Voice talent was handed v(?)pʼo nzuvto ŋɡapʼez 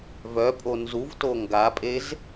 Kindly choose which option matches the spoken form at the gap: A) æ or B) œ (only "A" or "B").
B